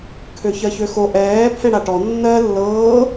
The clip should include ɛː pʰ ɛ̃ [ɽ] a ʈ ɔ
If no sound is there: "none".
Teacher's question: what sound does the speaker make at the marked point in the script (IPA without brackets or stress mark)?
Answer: ɽ